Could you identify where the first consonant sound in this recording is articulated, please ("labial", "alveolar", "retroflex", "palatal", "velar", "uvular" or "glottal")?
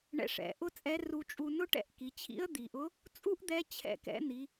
retroflex